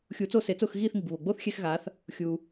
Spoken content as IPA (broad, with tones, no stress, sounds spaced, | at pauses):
xʲ u˩˥ t͡s o˥˩ s e˩˥ t͡s ʊː˥˩ x ɣ iː˥˩ θ ŋ i˩ b β o˩ ɡ͡b oː˥ θ xʲ ɛ˧ x ɣ aː˩˥ θ | xʲ uː˩